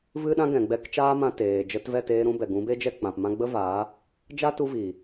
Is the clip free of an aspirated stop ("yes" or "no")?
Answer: yes